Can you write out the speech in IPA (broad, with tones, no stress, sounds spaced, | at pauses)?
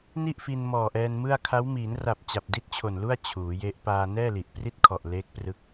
n i˥˩ ʔ f i˧ n m ɔː˨˩ ʔ ɛː˧ n m ɯ˥˩ a̯ kʰ a˦˥ w m iː˩˦ n r a˨˩ p̚ t͡ɕ a˨˩ p̚ d i˥˩ t̚ t͡ɕʰ o˨˩ n l u˥˩ a̯ t͡ɕʰ uː˩˦ j e˦˥ ʔ p aː˧ n ɛː˥˩ l i˨˩ ʔ p r i˥˩ t̚ kʰ ɔ˨˩ ʔ l eː˦˥ k̚ p r ɯ˦˥ k̚